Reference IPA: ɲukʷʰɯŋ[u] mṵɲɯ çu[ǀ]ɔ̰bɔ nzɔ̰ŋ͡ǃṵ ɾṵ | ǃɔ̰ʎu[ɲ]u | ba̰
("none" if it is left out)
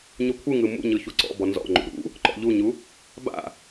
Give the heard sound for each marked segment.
ɯ, ǀ, ɲ

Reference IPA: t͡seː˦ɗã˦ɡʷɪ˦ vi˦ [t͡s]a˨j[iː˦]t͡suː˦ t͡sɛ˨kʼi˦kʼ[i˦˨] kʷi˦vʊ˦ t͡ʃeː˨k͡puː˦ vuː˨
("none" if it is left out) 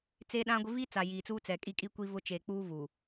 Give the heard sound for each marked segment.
t͡s, iː˨, i˦

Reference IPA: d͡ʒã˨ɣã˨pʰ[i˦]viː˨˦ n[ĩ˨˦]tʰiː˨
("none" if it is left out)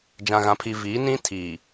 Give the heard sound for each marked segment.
i˨, ĩ˦

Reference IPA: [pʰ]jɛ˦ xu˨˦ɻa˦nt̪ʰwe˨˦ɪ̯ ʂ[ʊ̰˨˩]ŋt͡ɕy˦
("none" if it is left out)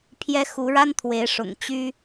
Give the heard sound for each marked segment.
pʰ, ʊ̰˨˩

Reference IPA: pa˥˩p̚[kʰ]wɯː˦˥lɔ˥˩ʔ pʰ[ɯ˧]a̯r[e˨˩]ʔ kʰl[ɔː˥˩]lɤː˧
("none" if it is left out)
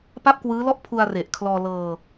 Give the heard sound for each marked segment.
k, u˧, e˨˩, ɔː˧

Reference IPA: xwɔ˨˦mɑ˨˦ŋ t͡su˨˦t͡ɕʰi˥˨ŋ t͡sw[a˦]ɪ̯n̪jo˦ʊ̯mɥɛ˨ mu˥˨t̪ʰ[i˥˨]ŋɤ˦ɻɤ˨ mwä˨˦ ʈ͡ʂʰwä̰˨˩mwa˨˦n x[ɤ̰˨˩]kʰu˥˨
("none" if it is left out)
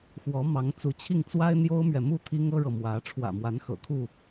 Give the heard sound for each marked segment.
a˦, i˦, ɤ̰˨˩

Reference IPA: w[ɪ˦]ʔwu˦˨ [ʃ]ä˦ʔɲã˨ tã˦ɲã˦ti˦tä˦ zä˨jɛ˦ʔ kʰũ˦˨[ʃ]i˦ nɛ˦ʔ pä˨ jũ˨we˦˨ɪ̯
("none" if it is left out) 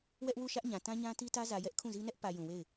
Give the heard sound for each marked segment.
ɛ˦, ʃ, z

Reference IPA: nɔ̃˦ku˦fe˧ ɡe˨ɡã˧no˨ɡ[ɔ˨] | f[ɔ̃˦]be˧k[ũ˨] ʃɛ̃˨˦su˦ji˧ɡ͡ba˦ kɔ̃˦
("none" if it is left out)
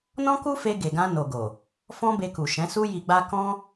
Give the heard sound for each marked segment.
o˨, ɔ̃˦, u˨

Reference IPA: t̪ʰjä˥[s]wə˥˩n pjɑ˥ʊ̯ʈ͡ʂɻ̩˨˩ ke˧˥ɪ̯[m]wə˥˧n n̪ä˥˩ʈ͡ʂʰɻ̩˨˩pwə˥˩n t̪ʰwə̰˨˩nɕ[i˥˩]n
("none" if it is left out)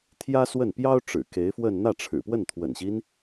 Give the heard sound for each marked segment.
s, f, i˦

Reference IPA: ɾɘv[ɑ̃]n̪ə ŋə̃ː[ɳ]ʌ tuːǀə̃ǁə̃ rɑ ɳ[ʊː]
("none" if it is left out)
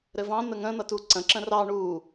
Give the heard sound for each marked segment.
ɑ̃, n̪, uː

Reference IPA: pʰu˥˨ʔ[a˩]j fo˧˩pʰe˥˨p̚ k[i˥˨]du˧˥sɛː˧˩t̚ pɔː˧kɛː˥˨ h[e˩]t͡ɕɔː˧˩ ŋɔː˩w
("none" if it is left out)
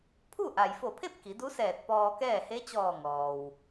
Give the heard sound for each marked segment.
a˩, i˩˧, e˧˥

